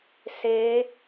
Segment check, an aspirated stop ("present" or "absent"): absent